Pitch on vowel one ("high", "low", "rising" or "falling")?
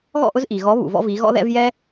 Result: falling